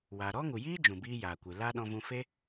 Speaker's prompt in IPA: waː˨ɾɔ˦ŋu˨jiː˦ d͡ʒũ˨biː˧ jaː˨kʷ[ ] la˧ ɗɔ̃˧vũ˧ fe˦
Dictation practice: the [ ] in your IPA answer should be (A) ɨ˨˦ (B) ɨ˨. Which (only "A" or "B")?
B